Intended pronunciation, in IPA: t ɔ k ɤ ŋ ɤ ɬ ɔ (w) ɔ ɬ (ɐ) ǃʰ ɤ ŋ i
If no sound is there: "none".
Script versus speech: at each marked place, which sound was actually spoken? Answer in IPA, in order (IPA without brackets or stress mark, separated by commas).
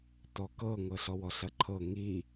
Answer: w, ɐ